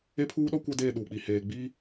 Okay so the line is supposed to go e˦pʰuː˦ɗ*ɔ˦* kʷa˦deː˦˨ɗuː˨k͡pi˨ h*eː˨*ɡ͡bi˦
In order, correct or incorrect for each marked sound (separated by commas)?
correct, correct